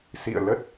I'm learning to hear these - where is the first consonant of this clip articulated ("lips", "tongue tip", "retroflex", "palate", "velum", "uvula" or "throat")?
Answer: tongue tip